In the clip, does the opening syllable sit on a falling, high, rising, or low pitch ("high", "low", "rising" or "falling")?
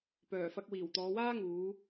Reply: low